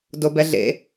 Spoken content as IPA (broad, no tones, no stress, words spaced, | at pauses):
dobɛɮḛ